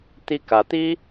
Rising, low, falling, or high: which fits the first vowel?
falling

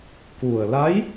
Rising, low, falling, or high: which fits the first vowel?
low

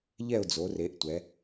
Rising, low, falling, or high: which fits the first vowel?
falling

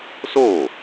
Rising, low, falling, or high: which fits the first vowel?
falling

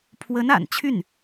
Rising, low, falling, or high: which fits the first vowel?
rising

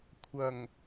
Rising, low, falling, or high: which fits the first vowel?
low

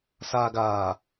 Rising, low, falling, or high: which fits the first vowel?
low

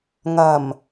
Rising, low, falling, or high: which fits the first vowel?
low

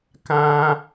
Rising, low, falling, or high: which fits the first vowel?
high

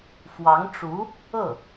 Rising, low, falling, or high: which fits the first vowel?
rising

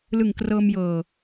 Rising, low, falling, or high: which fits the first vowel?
low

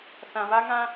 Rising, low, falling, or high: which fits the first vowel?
low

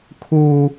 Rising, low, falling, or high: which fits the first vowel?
high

